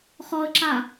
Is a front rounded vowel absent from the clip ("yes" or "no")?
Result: yes